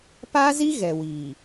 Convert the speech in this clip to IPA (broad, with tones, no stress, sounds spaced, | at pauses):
p a˦ z i˦ ɣ ɛ˨ w iː˨